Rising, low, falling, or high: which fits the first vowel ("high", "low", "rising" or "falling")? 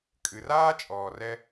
low